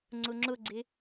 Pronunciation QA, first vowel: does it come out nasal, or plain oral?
oral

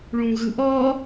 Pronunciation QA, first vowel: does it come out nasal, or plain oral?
nasal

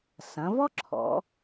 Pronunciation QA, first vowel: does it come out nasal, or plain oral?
nasal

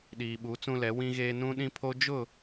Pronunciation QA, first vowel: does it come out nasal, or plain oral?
oral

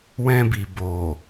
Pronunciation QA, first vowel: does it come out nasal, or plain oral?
nasal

